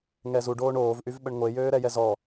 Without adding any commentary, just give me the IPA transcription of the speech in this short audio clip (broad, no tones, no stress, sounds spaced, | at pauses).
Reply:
ŋ ɛ z u ɖ oː ɳ oː v ʔ y v ɓ ə ɳ ŋʷ e j øː ɾ ɛ j ɛ z ɔ